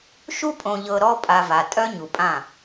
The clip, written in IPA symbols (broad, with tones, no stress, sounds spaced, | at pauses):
ʃ u˦ pʼ õ˨ ʎ ɤ˨ ɾ ɔ˦ pʼ a˨ v a˨ tʼ œ˦ ɲ u˨ pʼ ã˦˨